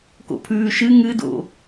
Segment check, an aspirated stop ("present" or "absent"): present